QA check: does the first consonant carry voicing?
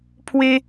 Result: no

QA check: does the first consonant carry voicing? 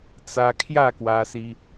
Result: no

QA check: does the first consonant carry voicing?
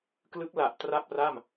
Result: no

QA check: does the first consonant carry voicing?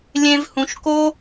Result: yes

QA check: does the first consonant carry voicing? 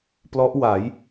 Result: no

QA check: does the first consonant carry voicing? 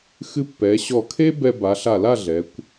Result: no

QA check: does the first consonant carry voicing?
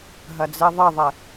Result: yes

